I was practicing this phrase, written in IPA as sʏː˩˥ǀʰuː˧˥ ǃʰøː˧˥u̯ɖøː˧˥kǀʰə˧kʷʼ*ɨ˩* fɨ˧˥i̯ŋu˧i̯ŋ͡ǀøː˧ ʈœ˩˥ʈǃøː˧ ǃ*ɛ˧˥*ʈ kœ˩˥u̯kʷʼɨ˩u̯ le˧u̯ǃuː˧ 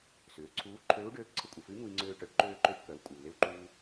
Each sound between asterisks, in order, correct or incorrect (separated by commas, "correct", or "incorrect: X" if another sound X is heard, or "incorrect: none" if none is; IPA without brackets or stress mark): correct, incorrect: ø˧˥